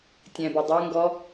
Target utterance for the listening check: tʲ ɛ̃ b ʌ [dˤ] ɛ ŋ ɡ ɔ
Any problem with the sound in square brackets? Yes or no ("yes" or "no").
no